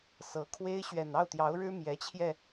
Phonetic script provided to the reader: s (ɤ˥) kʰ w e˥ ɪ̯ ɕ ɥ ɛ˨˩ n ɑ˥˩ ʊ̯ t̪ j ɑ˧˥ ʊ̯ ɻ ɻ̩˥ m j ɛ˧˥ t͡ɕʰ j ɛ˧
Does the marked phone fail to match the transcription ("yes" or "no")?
yes